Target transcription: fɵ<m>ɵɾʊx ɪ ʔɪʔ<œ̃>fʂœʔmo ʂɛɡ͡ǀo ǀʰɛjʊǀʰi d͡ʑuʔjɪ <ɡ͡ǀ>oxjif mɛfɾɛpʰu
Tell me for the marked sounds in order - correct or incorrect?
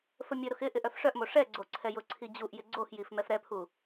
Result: incorrect: mʲ, incorrect: œ, correct

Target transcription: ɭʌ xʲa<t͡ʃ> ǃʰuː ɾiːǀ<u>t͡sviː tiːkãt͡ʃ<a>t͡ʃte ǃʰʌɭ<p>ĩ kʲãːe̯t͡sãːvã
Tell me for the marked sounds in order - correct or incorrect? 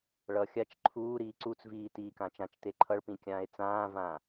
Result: correct, correct, incorrect: ã, correct

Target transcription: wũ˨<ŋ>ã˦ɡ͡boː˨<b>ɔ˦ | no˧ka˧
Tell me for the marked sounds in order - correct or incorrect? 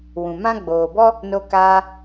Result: incorrect: m, correct

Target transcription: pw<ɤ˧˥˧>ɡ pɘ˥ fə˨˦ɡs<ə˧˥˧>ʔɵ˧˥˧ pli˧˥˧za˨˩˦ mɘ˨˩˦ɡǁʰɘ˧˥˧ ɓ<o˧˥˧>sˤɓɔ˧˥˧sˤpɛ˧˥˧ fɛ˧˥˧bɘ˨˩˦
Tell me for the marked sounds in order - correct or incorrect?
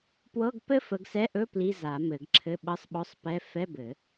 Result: correct, incorrect: ɛ˧˥˧, incorrect: ɤ˧˥˧

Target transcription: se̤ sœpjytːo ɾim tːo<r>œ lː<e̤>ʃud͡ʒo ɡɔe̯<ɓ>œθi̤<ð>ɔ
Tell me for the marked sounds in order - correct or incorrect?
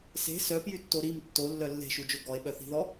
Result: incorrect: lː, correct, correct, correct

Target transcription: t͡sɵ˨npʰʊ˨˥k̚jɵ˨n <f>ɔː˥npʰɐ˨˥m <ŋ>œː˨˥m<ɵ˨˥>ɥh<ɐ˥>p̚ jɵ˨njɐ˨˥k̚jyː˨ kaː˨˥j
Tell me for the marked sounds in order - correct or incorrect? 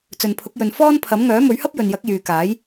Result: correct, correct, correct, correct

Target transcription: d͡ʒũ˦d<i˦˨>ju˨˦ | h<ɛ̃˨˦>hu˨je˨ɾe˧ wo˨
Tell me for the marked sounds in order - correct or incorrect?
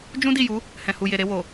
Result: correct, incorrect: ɛ̃˨

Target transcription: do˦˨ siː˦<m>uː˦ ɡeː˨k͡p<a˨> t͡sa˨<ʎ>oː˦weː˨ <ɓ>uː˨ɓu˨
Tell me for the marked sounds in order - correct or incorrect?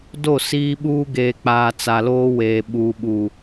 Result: incorrect: ɓ, incorrect: aː˨, incorrect: l, correct

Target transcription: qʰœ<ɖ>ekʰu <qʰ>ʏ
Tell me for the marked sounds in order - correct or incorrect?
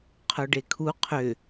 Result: correct, correct

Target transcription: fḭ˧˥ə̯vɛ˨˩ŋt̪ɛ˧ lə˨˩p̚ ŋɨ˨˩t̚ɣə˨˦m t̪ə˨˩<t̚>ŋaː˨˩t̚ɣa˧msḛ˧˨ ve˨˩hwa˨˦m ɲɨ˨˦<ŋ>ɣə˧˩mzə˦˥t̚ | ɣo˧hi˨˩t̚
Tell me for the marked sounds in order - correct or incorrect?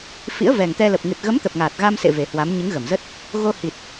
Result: incorrect: p̚, correct

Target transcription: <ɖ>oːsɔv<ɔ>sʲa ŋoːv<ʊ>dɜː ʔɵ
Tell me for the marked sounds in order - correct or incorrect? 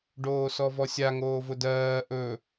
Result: correct, correct, correct

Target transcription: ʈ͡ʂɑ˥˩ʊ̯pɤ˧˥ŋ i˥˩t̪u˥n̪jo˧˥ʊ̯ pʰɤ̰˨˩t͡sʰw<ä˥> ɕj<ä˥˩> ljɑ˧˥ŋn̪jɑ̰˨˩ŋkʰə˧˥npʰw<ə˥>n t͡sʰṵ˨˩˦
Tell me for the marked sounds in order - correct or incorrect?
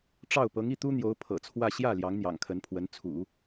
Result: incorrect: ä˥˧, correct, incorrect: ə˧˥

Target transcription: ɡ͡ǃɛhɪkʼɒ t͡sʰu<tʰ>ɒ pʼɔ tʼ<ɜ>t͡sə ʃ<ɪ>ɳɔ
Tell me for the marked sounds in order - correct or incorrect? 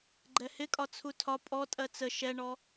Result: correct, correct, incorrect: ɛ

